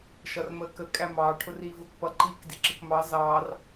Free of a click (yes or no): no